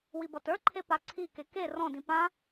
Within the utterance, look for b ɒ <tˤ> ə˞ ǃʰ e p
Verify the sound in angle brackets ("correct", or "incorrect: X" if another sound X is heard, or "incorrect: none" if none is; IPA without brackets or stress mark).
incorrect: t